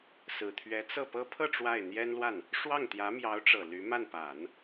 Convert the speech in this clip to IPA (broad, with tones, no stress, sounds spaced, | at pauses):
s ɹ̩˨˩ t̪ʰ ɥ ɛ˧˥ t͡s ɤ˥˩ p ɤ˥ pʰ ɤ˥˧ ʈ͡ʂ w a˥˩ ɪ̯ n̪ j ɛ˥ n l w a˥˩ n | ʂ w ɑ˥˩ ŋ t̪ j ä˧˥ m j ɑ˧˥ ʊ̯ ʈ͡ʂ ɤ˨˩ l y˧˥ m a˥˩ n p a˨˩˦ n